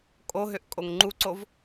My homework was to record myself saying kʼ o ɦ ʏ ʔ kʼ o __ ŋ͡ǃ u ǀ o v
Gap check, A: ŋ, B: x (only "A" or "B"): A